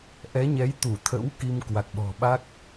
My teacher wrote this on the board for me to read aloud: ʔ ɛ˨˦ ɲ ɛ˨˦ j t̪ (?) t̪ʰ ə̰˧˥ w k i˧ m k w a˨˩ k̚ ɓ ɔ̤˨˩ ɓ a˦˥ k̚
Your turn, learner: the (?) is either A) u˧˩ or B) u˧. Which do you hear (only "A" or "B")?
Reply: A